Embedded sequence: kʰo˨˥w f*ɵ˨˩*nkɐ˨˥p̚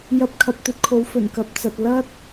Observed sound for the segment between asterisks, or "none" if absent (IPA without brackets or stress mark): ɵ˨˩